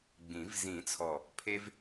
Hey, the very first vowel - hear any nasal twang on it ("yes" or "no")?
yes